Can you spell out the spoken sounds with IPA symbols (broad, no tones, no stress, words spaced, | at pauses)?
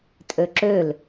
tʼøǁøl